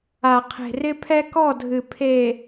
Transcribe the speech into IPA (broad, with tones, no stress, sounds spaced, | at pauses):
a˨ qʰ e̤˨ r ɪ˦ pʰ ɛ˦ k ɔ˦˨ dʱ ɨ˨ pʰ e˨